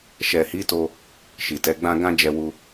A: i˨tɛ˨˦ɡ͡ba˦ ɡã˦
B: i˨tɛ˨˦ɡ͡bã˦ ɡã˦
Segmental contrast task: B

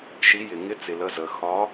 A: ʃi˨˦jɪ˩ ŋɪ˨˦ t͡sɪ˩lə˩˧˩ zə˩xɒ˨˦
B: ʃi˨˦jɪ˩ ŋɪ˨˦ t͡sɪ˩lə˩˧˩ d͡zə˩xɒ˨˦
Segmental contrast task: A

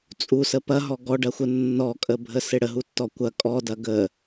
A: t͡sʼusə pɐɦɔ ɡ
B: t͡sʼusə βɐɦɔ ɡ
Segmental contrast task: A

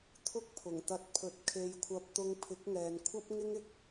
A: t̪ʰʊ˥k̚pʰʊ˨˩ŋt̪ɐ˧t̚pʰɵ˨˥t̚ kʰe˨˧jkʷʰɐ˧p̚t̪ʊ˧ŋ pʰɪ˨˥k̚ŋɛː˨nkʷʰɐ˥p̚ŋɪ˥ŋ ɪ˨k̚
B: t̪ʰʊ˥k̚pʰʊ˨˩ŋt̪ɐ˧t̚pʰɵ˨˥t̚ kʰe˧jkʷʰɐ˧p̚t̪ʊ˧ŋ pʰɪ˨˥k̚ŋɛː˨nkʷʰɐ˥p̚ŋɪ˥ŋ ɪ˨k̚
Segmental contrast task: A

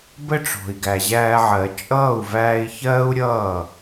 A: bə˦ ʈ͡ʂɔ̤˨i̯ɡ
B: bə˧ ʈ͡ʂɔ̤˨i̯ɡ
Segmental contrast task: A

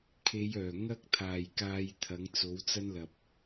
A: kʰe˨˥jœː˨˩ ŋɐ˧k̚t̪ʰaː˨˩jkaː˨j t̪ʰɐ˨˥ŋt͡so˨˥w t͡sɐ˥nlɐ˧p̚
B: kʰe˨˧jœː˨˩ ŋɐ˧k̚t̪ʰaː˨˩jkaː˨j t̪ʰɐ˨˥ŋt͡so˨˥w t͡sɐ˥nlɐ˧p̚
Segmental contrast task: B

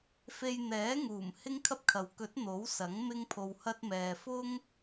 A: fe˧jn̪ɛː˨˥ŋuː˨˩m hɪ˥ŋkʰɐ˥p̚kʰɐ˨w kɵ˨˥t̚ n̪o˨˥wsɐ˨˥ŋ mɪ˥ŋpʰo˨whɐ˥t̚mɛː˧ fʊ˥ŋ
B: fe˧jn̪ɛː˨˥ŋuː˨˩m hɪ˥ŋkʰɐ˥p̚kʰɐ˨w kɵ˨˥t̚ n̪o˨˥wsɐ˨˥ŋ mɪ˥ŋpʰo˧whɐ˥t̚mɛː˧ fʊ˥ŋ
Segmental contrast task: B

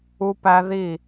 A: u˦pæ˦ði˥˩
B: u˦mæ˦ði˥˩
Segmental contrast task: A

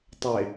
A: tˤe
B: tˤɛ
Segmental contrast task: A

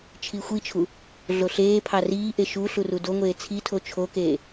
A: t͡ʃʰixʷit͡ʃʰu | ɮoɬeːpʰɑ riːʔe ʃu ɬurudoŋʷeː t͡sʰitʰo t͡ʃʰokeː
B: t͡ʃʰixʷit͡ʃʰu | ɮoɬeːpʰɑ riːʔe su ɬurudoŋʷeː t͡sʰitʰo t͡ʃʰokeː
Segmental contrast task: A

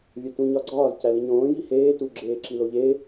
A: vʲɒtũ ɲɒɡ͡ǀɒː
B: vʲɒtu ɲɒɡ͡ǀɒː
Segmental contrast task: A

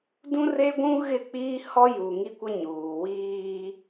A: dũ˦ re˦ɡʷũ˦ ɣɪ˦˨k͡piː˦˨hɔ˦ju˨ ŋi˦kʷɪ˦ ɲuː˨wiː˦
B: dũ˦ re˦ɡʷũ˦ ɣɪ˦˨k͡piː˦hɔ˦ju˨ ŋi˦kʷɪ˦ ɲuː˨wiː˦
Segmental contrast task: B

